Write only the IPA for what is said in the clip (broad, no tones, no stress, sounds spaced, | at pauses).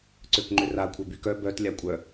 ǀ ø k ŋ͡ǃ ʏ r a kʷʰ œ b y k œ b œ t lʲ a kʷʼ œ